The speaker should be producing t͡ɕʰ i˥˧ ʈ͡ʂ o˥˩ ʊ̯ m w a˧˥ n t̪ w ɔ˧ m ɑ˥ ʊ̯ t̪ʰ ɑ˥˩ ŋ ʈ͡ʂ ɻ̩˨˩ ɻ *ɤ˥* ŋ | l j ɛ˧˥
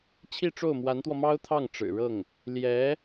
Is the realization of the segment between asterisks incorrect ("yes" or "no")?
yes